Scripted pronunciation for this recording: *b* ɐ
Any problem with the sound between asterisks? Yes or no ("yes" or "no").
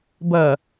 no